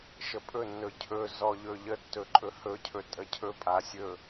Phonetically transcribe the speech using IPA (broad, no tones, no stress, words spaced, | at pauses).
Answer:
ʃəpʼɵ nːɵcʰɵ zɔʎɵʎə tːɵǃʼɵhɵ cʰɵtʼəcʰɵ pʼasʲɵ